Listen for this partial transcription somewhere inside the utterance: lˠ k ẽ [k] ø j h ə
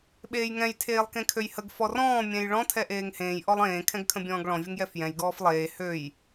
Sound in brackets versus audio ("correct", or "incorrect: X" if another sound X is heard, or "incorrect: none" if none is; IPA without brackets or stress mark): incorrect: kʰ